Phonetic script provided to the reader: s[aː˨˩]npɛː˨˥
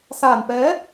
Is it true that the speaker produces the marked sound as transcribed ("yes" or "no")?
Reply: yes